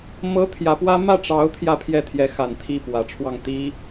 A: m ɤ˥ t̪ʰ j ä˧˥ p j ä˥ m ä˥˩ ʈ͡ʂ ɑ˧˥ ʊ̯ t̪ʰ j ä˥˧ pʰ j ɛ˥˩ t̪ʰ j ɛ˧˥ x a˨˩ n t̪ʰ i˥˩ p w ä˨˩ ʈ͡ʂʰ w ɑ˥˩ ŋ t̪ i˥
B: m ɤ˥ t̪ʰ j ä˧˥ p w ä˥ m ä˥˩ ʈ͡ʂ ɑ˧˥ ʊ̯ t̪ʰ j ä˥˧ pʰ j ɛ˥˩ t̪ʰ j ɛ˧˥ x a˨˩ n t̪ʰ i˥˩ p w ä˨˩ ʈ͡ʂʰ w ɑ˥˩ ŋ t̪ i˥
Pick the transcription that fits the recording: B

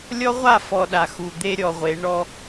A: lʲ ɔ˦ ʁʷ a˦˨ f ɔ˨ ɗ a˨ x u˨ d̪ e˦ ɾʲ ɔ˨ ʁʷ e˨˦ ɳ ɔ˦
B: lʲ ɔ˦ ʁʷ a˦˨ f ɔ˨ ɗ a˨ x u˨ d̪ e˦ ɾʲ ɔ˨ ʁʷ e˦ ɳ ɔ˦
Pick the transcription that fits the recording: A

